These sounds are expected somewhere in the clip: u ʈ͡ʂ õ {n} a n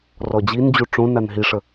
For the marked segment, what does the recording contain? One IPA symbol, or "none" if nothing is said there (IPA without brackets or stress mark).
n